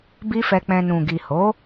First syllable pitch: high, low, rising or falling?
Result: high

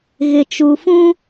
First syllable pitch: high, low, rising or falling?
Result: low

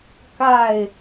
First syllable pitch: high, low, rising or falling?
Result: falling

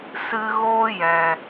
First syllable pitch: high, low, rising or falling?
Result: high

